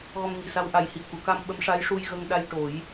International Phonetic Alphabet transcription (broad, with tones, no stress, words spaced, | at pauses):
ɣɔ˧mŋi˨˩sa˧w ʔa˨˩jhi˨˩ə̯ ku˨˩˨ka˧m ɓə˧˥mʂa˧˥jʂu˧j ɣə˧ŋɗa˧jʈo˨˩˦j